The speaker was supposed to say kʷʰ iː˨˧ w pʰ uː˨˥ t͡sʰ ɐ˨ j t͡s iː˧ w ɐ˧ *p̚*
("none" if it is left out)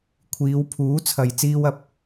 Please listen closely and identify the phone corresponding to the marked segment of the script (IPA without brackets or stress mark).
p̚